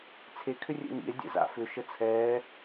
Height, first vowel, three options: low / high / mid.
mid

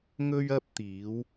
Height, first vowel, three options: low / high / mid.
mid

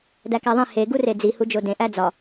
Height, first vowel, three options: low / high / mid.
low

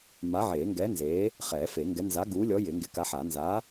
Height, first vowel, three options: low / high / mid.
low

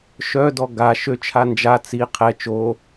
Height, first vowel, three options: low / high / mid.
mid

